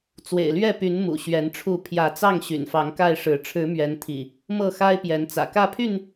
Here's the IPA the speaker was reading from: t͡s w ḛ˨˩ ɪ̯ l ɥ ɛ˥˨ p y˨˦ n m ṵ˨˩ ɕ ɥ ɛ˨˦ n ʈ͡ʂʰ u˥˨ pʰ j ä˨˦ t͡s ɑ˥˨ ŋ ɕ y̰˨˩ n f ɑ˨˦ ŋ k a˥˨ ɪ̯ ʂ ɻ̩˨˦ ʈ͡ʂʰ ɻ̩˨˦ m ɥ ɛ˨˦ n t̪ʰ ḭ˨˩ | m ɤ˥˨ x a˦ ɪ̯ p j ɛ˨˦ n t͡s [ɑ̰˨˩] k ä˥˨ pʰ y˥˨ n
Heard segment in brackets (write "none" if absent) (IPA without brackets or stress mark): ä̰˨˩